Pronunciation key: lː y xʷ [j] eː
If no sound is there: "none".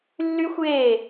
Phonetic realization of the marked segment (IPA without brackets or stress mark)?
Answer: j